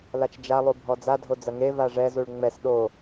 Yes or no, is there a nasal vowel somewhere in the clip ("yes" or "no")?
no